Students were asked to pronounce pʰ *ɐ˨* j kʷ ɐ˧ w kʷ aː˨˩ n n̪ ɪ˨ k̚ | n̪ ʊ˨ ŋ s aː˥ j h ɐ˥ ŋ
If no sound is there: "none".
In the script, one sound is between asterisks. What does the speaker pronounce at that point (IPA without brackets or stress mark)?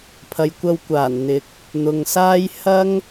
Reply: ɐ˨